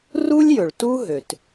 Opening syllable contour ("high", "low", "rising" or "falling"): high